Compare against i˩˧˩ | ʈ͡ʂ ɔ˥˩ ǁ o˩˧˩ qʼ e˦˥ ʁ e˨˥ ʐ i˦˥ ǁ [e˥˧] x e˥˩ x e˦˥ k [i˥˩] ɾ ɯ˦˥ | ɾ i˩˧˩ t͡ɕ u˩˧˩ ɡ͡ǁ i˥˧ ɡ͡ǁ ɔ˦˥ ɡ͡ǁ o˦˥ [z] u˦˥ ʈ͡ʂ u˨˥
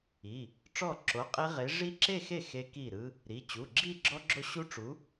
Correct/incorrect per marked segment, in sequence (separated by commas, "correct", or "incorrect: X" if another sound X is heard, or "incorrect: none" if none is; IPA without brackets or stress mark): correct, correct, incorrect: ɕ